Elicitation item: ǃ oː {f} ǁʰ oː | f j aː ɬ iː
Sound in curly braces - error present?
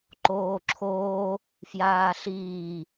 yes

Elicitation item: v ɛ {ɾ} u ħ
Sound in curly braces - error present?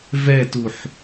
yes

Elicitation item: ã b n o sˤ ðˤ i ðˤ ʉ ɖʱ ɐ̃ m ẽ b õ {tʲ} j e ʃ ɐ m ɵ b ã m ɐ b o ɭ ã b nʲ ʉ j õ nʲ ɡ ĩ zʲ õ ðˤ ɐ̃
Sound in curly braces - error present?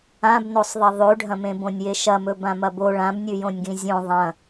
yes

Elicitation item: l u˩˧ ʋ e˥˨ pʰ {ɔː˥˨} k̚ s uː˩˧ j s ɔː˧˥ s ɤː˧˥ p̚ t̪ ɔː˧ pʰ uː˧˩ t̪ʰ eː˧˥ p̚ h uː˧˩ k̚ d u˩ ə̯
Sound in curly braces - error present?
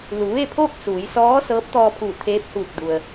yes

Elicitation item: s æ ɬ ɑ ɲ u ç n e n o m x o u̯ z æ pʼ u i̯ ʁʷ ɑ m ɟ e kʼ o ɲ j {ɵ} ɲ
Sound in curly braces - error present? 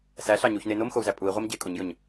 no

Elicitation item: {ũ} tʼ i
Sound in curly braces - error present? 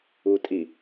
yes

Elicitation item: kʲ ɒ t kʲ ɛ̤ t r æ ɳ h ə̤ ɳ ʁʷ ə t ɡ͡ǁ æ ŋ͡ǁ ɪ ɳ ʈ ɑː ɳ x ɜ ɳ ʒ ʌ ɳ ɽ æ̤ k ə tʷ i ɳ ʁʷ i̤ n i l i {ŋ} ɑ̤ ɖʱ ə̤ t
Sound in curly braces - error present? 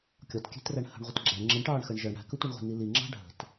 yes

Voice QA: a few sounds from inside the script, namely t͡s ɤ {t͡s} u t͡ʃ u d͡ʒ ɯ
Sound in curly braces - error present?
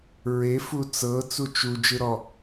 no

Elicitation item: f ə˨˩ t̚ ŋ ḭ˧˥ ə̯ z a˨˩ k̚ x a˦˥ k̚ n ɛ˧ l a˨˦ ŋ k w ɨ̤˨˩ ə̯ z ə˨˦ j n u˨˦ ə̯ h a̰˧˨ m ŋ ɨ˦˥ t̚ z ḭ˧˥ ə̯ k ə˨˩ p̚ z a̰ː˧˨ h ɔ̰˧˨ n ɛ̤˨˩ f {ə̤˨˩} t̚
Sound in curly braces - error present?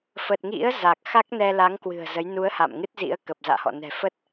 yes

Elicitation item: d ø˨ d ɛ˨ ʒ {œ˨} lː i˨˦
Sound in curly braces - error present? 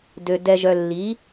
no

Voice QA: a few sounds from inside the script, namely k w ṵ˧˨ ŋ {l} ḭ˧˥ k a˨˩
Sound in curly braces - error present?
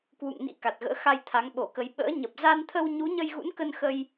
yes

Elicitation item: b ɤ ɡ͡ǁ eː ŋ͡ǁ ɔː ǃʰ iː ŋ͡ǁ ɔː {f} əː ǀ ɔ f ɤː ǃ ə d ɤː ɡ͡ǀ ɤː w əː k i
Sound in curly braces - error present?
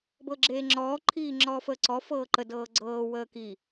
no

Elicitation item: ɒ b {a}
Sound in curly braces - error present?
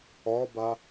no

